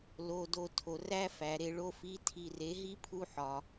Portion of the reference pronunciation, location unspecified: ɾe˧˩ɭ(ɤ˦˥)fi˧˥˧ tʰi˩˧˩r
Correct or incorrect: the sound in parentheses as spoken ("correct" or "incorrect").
incorrect